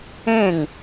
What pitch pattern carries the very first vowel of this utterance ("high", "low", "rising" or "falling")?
falling